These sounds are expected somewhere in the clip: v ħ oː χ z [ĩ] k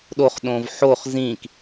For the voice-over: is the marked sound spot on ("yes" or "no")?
yes